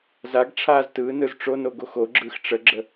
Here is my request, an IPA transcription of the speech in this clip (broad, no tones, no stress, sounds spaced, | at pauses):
z a ɡ ʈ͡ʂʰ aː z t ɯː n ɯ z ʈ͡ʂ o n o ɡ o x o ɡ͡ǁ ɯː x ʈ͡ʂ ə ɡ͡ǁ ə